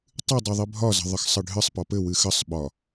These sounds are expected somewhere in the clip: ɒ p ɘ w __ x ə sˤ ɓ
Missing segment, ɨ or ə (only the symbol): ɨ